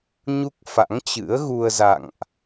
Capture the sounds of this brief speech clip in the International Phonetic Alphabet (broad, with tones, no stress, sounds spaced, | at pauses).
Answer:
ɲ u˦˥ k̚ f a̰˧˥ ŋ t͡ɕ ɨ̰˧˥ ə̯ ɣ u˧ ə̯ z a̰˧˨ ŋ ʔ